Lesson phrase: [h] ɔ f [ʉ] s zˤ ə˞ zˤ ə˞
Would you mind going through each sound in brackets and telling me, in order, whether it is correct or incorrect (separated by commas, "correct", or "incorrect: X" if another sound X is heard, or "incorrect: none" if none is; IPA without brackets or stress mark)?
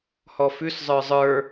correct, correct